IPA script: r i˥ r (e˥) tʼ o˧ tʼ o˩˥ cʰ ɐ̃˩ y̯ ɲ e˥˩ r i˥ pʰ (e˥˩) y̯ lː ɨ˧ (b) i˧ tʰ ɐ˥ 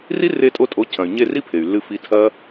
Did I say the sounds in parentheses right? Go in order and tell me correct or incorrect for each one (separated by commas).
incorrect, incorrect, incorrect